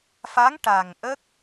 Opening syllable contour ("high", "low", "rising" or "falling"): rising